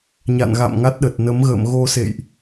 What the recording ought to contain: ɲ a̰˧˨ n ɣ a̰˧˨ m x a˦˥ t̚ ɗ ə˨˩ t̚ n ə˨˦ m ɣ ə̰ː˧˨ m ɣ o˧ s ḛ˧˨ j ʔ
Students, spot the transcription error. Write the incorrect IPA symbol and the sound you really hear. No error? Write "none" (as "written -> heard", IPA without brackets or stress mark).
x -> ŋ